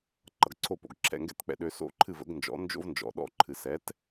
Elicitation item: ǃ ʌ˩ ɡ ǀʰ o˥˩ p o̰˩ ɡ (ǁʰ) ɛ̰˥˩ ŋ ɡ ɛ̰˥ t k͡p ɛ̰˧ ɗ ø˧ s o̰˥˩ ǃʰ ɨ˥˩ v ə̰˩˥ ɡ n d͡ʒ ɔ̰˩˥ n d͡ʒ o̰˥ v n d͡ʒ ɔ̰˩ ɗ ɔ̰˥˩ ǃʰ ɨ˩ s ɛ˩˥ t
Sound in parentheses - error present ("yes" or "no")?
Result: no